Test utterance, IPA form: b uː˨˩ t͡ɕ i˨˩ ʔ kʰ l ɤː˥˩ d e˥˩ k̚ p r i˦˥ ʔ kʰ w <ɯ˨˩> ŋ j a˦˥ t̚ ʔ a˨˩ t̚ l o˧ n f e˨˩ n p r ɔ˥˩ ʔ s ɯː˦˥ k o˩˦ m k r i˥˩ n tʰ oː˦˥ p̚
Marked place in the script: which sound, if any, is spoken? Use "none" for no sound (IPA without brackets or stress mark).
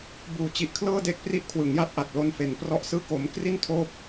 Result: ɯ˩˦